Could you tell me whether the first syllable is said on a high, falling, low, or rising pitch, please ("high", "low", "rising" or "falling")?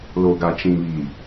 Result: low